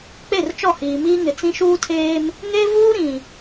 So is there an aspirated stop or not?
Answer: yes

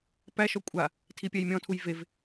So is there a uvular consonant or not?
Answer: no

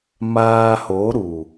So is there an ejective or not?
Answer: no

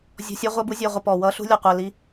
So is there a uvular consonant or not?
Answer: yes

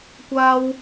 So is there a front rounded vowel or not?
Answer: no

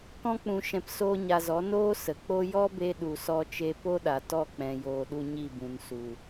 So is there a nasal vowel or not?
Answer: yes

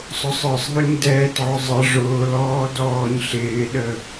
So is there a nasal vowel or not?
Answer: no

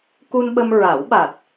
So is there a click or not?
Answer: no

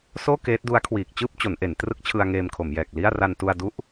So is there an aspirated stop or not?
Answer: yes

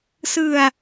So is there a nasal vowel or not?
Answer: no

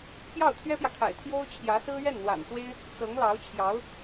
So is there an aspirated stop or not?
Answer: yes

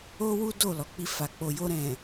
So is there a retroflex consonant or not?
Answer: no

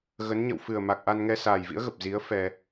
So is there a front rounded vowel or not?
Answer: no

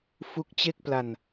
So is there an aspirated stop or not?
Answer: no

